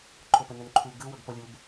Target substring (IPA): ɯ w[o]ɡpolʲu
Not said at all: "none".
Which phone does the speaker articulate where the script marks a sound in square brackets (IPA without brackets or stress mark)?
ɤ